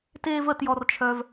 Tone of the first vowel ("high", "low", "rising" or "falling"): high